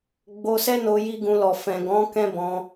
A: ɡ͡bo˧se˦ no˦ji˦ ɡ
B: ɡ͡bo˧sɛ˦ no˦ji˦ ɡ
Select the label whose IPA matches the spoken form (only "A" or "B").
B